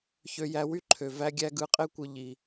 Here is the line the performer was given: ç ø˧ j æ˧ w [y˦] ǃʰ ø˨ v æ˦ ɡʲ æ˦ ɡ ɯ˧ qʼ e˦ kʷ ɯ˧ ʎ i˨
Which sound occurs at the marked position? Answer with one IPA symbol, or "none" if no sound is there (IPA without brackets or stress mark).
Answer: y˦